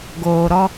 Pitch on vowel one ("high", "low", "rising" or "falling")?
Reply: low